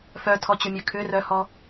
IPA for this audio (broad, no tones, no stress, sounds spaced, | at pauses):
f œ tʰ ɔ t͡ɕ ʊ mʲ ø kʰ ʏ r œ h ɔ